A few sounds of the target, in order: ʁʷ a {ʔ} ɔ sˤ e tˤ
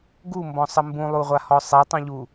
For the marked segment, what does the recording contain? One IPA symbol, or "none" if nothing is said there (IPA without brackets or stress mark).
h